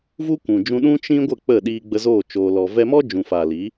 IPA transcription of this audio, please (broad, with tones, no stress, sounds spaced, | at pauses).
v u˦ kʷ ũ˨ d͡ʒ ũ˧ ɗ ũ˦ t͡ʃ ĩ˦ ɡʷ ə˦˨ k͡p ə˦˨ ɗ iː˧ ɡ͡b ə˧ z oː˦˨ t͡ʃ oː˧ l ɔ˧ v ɛ˧ m ɔ˦ d͡ʒ ũ˨ f aː˨ l i˨˦